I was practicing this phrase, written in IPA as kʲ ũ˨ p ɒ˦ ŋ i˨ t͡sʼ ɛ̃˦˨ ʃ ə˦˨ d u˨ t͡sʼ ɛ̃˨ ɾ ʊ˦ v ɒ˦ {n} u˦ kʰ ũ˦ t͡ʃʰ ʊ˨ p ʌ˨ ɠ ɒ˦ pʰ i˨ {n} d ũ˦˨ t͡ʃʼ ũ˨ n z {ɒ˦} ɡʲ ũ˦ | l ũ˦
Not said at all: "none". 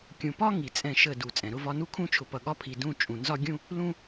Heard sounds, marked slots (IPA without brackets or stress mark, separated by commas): n, none, ɒ˦